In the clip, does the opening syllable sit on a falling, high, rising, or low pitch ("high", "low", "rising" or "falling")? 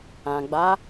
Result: low